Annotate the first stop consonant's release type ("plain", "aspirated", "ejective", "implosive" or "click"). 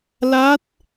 plain